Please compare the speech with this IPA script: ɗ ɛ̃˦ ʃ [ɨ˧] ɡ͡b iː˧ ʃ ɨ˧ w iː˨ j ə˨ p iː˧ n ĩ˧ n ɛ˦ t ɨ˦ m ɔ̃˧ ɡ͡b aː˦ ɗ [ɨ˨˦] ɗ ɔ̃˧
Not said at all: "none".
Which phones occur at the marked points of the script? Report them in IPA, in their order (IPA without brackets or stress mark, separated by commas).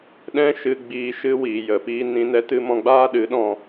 ɨ˧, ɨ˨˦